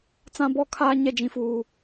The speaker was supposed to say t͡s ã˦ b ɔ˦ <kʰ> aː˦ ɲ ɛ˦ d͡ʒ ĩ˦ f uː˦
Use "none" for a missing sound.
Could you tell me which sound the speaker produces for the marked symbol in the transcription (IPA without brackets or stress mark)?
kʰ